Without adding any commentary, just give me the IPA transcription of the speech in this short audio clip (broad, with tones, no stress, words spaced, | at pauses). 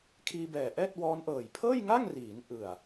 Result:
kʰiː˧bɛː˨˩ʔɛː˥˩t̚ wɔː˦˥nʔɤː˨˩j pʰɤː˥˩jŋa˥˩ŋriː˩˦n ʔɯ˨˩a̯